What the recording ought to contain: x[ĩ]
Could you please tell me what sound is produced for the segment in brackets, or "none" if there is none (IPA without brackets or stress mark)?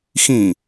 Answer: ĩ